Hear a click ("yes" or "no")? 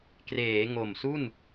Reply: no